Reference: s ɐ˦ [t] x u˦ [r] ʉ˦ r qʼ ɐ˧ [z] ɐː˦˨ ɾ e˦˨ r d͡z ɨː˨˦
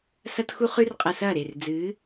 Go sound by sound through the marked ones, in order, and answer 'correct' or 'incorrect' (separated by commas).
correct, incorrect, incorrect